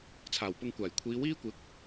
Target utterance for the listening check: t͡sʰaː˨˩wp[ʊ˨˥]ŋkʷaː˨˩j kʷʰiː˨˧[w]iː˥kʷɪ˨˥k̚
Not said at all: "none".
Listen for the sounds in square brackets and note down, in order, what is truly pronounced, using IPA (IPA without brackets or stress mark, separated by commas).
ʊ˧, w